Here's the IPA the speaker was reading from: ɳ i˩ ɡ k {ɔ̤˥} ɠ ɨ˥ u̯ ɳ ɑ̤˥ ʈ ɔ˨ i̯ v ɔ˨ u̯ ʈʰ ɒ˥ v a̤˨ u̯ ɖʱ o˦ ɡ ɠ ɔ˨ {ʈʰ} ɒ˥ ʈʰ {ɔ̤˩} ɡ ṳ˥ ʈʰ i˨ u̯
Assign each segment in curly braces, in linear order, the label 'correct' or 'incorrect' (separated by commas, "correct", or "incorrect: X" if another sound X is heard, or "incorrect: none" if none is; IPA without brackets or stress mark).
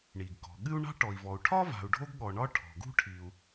incorrect: ɔ̤˩, incorrect: ɳ, correct